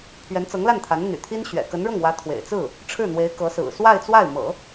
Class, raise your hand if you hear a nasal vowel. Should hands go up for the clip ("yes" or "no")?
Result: no